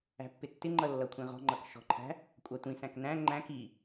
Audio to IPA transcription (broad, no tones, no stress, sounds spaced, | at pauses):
æ̤ pː ɪ tː ɪ ŋ͡ǃ ʌ lː ʌ kʷʰ ĩ ʁ ɔ̤ ŋ͡ǃ ʌ k ʃ ɔ̤ ǃʰ æ̤ | kʷʼ ɑ tʷ ĩ s æ̃ k n æ̃ ŋ͡ǃ æ̃ k i